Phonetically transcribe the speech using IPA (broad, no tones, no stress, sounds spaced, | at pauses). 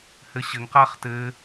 h ɘ ɕ ɘ ŋ q a χ t ɘ